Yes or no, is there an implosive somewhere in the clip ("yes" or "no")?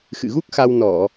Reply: no